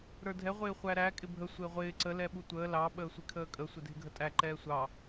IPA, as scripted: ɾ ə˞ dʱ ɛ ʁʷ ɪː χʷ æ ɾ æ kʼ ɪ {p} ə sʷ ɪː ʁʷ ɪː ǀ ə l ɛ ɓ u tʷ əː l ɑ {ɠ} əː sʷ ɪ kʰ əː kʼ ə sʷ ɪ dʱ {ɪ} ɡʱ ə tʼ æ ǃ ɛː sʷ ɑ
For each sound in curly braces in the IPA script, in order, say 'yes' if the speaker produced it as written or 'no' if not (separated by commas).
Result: no, no, yes